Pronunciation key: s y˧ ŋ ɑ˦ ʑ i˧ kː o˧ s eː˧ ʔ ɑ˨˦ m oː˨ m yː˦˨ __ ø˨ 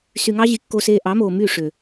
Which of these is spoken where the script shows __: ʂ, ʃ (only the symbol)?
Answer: ʂ